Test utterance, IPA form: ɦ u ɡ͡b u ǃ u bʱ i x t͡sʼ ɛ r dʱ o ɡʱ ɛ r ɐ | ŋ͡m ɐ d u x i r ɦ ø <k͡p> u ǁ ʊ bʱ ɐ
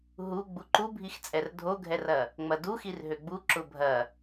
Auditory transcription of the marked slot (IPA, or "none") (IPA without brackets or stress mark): ɡ͡b